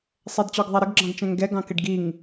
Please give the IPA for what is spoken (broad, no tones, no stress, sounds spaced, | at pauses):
sˤ ɛ d t͡ɕ ɔ ɡ ðˤ æ ɾ ə ɡ ɡ͡ǁ ɑ̃ ɡ t͡ʃ ɛ̃ ŋ ɡ ɛ ɡ ɑ̃ k ɪ ɖ ɡ i ŋ